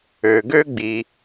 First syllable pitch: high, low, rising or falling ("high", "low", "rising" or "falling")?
low